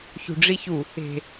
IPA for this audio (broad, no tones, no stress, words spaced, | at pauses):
çṳɖ͡ʐiçu | e̤